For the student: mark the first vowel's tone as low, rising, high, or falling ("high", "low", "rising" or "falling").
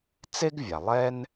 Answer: high